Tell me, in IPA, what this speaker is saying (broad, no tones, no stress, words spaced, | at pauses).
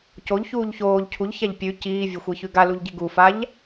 coʎçuːʎ çoːʎ cʰuʎçaʎ pʲʉ ciːvʲɐxʷeçʉ ɡaluʎɟi ɡufaʎ